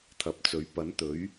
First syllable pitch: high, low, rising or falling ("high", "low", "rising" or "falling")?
rising